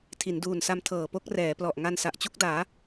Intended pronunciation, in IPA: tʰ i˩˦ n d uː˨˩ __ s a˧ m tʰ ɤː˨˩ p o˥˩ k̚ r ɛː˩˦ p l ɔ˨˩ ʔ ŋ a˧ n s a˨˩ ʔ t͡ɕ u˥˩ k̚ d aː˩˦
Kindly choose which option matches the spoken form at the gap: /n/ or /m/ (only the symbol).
n